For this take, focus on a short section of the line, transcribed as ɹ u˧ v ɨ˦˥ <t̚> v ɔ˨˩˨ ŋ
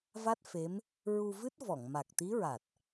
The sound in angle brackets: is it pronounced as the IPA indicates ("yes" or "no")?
yes